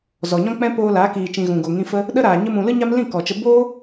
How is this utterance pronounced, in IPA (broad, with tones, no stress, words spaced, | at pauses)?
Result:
zɔ˨ɲɔ̃˦k͡pɛ̃˦ poː˧ laː˨˦kiː˨t͡ʃĩ˨ ɣũ˨ɡo˨ ŋĩ˧fə˦ | ɗə˦ɾaː˨ ɲə˧mũ˨ lɨ˦ɲa˦mlĩ˦˨ kɔ˨t͡ʃə˧ boː˦